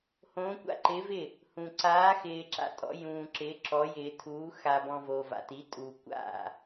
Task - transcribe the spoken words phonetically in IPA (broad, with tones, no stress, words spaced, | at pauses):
hõː˧˥kʷa̰˥˨ǃɪː˧˥vɪ˥˨ | hũ˧ ǀaː˧˥xɪː˧ ǁa̰˥˨tʼɔ̰˧˥ jũː˧ǁɪː˧˥ ǁɔ˧˥jɪː˧ tʰuː˧˥ xa˧bɔ̃˧ vo˧va̰˧ti˧˥tʼuː˧ kʷa̰˥˨